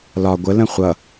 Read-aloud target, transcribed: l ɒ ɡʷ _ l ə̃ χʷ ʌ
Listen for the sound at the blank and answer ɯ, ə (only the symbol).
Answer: ə